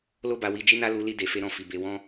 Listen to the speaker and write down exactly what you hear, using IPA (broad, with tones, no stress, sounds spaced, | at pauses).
l o˦ b a˧ w i˧ d͡ʒ i˦ n a˦ l u˧ l i˧ d e˨ f e˧ ɾ ɔ̃˧ f i˨ b e˧ w ɔ̃˦